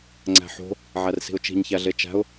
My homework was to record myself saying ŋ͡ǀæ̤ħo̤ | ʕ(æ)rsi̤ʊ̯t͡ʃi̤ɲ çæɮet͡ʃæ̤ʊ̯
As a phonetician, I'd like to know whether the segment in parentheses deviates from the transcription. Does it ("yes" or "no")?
no